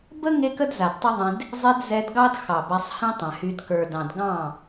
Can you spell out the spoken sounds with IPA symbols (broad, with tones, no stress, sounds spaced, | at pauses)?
b ə˦ ŋ e˦ k ə˦ d z a˨ d tˤ ɐ˦ ðˤ ẽ˧ d | zˤ e˧ d z ɛ˧ d ɡ ɑ˦ d x ɑ˨ b a˧ sˤ h ẽ˦ tˤ ɛ̃˨ h y˧ d k ə˞˨ d ɑ̃˨ d ɡ ɑ̃˦˨